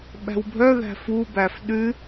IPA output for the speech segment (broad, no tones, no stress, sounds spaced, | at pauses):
ɓ æ̤ w bʱ œ ð æ̤ f u b æ f ɗ ʉ